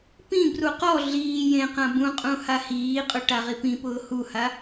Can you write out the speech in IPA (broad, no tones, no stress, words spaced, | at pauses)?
pĩbru qɔ ɮiː jẽqã bũqʼũ hahiːqʼʊ ʈaʁipĩpʊː huha